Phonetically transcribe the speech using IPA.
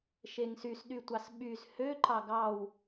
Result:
ʃeŋsys ɗytʷɑsɓyz hø ǃɑɡɑw

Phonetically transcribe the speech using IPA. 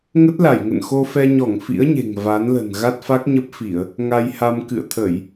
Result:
ŋə˦˥t̚la˧˩jŋə̰˧˨nxo˧ fɛ˧ɲɔ˧˩ŋ fḭ˧˥ə̯ɲe̤˨˩ŋ va˨˦nlə̤˨˩n ɣa˦˥t̚fa˦˥k̚ɲə˦˥p̚fi˧˩˨ə̯ | ŋa˧jha˧m kɨ̰˧˨ə̯t̪ʰə˧˩˨j

